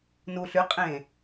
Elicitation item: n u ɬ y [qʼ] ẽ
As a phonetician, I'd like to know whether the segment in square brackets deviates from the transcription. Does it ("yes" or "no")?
no